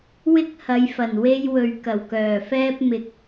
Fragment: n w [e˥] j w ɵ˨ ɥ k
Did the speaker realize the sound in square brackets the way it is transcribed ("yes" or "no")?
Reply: yes